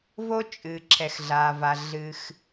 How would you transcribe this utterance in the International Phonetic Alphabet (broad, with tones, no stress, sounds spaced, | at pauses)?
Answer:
v o˥ t͡ʃʼ ɨ˩ ǁʰ ɛ˩ x ɮ aː˩ v a˩ ɮ ɨ˩ x